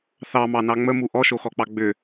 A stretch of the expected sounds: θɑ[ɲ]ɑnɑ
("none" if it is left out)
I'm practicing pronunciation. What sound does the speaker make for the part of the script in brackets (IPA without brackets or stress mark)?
m